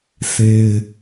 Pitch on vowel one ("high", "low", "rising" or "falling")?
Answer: high